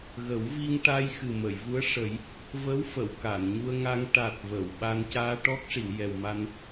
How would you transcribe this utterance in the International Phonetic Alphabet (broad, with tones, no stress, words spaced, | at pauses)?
ɣə˨˩˦wvi˧ŋ ʈa˧jxɨ˨˩mə˨˩˨j vu˧˥ə̯ʂə˨˩˦j | və˧˥wfə˨˩˨w ka˨˩˨nɲu˧ə̯ŋa˧ŋ ʈa˨˩t̚ və˨˩˨wɓa˧n caː˧ʈɔ˦˥k̚ʂi˨˩˨w jɛ˨˩wma˧n